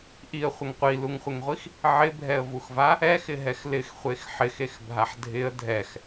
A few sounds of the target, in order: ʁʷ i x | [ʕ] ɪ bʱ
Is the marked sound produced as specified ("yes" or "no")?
yes